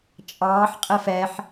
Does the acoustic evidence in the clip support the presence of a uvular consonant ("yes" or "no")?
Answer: yes